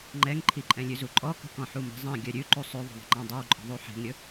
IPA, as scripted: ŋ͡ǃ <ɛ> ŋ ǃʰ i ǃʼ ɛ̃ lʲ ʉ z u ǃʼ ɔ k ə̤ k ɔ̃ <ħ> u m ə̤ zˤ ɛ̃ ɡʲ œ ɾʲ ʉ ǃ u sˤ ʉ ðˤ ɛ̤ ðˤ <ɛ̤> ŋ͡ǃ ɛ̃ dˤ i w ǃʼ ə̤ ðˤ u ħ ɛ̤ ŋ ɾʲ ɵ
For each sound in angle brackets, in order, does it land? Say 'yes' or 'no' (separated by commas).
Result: yes, yes, no